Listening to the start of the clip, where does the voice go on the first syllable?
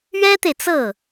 high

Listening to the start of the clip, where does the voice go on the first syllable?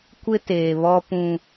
high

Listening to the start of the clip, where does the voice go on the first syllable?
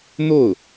falling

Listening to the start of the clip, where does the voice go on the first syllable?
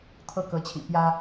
falling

